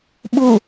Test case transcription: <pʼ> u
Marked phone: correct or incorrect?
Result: incorrect